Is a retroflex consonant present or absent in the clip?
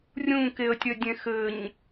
absent